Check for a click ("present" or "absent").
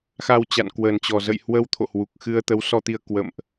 absent